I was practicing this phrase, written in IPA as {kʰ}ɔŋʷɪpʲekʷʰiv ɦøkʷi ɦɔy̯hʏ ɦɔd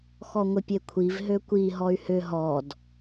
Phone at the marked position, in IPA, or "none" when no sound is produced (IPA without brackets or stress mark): x